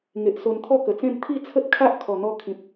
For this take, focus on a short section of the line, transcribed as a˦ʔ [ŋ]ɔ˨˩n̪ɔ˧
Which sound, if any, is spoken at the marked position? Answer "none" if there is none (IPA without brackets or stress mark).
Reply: kʰ